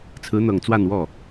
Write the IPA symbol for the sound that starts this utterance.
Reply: t͡sʰ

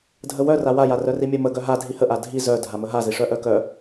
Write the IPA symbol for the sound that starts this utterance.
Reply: dʱ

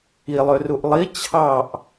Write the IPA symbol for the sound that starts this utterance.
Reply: i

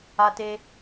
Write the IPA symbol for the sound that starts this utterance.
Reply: a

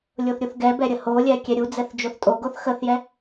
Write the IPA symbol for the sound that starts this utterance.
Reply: lʲ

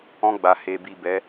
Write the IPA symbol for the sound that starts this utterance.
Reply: ɔ̃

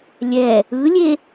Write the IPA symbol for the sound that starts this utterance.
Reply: lʲ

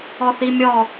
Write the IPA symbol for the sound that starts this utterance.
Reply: ɔ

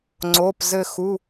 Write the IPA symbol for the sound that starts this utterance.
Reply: ŋ͡ǀ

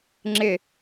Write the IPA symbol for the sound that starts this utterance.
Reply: ŋ͡ǁ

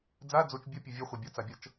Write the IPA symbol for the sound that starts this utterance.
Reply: d͡z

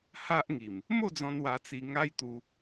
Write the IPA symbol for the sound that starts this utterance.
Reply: h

